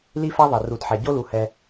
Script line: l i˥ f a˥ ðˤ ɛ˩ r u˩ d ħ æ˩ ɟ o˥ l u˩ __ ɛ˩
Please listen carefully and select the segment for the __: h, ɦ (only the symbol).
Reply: h